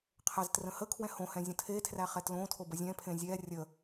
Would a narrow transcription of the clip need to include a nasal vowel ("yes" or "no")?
yes